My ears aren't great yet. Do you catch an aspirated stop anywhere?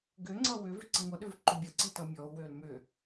no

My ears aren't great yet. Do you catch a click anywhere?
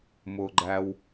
yes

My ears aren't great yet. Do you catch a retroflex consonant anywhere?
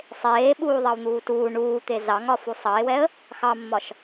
yes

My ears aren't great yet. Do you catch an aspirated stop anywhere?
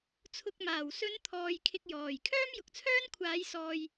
yes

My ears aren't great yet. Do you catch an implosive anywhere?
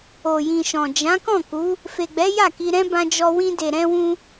no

